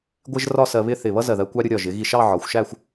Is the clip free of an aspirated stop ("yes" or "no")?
yes